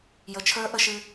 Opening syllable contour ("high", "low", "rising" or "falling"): rising